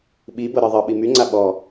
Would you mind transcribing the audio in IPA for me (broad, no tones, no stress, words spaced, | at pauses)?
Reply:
ɓi bɤɾɤðˤɤɓi myŋ͡ǀa ɓɔ